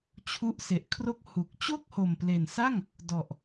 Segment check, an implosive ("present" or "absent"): absent